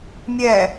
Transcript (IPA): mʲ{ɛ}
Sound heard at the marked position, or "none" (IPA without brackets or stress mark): ɛ